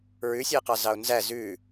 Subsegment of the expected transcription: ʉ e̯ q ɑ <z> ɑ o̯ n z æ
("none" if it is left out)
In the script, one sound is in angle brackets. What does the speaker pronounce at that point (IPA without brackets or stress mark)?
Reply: z